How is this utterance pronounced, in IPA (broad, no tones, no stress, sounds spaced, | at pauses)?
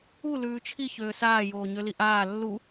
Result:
u l ʉː t͡ʃʰ i ç øː s aː j oː ɲ ø l i ʔ aː lː u